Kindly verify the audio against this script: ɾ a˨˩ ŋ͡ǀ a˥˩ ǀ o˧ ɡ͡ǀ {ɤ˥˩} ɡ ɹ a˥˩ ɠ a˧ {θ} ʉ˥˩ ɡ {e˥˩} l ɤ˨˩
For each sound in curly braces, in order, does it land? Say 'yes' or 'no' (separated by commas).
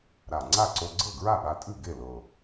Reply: yes, no, yes